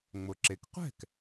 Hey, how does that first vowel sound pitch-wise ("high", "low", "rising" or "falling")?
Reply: low